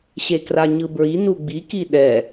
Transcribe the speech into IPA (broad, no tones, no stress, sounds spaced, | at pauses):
ɕ e k r a ɲ ɯ b ɹ i n u ɡ͡b i k i ɗ ɛ